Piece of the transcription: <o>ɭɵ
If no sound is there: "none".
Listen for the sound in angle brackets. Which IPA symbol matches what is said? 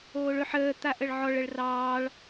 oː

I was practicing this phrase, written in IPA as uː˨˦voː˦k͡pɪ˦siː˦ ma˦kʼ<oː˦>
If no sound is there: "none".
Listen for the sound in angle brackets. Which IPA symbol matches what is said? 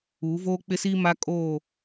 oː˦˨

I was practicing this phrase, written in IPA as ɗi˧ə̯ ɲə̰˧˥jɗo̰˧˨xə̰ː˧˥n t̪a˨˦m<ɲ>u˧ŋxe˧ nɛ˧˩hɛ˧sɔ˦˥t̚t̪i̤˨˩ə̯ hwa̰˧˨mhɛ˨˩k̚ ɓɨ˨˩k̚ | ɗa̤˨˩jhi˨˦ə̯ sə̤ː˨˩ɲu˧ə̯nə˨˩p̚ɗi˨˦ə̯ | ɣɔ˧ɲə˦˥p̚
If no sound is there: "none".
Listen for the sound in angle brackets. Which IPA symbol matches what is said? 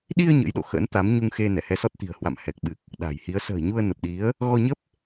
ɲ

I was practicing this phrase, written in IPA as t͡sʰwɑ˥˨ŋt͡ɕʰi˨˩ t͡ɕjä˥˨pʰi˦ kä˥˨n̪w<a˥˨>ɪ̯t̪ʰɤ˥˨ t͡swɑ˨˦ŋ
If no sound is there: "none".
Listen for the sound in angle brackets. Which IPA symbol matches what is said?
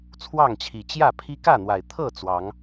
a˨˩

